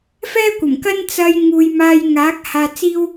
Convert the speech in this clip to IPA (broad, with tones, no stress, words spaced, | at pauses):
fɛː˥kʷɐ˨˩mkɐ˥n t͡sɐ˧j ŋuː˨jmaː˧j ŋaː˨˥k̚ haː˧t͡siː˥w